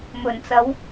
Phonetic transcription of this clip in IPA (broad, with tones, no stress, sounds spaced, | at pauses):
m ɵ˨˩ n t͡s ɐ˨˥ w